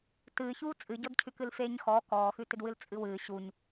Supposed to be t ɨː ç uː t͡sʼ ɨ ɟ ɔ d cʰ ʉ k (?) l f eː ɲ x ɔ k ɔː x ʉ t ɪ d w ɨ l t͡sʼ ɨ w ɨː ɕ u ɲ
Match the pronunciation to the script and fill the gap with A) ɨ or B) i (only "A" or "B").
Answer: A